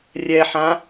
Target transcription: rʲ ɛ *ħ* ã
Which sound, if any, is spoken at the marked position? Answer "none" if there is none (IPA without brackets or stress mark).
ħ